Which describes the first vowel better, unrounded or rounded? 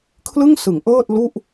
unrounded